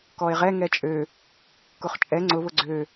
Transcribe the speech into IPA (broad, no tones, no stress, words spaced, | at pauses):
kɔe̯ʁɛ ŋɛt͡ʃʼø | kʊχt͡ʃʼɛ ŋ͡ǀʊβʊ ɡ͡ǀø